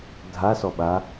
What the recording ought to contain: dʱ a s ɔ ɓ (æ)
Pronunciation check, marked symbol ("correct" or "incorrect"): incorrect